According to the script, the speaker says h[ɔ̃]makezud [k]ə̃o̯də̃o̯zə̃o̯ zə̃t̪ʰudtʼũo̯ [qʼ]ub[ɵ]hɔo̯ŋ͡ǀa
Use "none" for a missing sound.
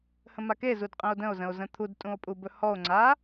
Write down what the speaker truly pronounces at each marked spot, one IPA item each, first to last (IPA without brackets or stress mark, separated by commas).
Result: ə̃, qʼ, pʼ, ɵ